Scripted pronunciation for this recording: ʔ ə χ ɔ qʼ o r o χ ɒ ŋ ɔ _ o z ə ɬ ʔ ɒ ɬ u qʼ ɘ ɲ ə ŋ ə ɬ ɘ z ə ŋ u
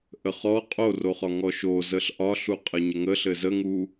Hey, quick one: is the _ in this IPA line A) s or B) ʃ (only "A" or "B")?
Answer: B